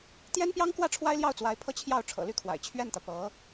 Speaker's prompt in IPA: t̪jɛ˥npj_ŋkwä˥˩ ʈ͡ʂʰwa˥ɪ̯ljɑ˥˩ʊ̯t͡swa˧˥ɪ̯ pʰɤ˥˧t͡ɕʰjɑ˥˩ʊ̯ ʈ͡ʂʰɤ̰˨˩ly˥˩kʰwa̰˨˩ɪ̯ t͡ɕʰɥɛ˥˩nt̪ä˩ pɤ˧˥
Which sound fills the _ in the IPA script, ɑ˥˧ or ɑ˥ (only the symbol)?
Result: ɑ˥